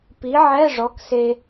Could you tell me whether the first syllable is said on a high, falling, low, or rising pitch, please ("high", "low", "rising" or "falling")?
rising